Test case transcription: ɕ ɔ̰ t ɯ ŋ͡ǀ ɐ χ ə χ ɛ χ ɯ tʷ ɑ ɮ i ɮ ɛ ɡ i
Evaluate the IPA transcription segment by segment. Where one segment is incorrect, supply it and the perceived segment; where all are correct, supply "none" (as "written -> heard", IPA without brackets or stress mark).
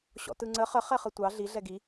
ɐ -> ə